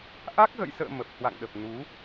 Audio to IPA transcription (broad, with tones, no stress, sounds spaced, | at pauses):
ʔ a˦˥ k̚ ɣ ə̰˧˨ j s ə̰ː˧˨ m ə˨˩ p̚ h w a̰˧˨ ŋ ɗ ə˨˩ p̚ n u˨˦